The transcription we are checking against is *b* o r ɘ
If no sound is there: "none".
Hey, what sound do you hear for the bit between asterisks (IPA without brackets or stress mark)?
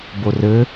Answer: b